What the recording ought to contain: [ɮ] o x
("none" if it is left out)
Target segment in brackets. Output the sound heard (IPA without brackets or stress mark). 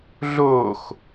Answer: ɮ